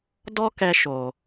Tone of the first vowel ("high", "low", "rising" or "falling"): high